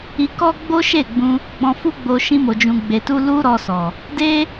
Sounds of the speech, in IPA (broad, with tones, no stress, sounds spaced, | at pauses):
i˧ k ɔ˦ ɡ͡b o˦ ʃ e˦˨ ɡ͡b ũ˧ | ɡ͡b ɔ̃˧ f u˦ ɡ͡b o˧ ʃ ĩ˧ m o˨ d͡ʒ ũ˨ ɡ͡b e˨ t u˧ l u˦ ɾ ɔ˧ s ɔ˨ | d e˦